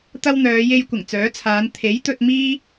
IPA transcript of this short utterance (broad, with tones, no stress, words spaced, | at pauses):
t̪ɐ˥wn̪œː˨˧ je˥j kʷɪ˨˩ŋt͡sœː˨˥t͡sʰaː˨˧n t̪ʰe˨˥jt̪ɵ˧t̚ miː˥